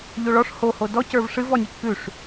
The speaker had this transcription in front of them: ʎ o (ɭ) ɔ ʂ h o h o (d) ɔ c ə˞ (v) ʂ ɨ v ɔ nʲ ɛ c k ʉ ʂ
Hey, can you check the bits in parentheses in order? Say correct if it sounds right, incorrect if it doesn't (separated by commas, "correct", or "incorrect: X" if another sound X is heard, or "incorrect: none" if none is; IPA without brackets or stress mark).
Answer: correct, correct, correct